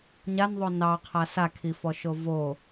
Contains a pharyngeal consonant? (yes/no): no